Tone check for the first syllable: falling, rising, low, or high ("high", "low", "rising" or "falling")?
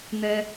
high